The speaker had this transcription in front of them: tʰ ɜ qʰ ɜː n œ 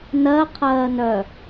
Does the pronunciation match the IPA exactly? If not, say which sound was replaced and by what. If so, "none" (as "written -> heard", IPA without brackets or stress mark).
tʰ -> n